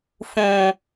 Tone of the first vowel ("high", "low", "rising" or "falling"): low